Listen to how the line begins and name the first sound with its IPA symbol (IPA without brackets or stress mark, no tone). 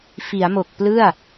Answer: f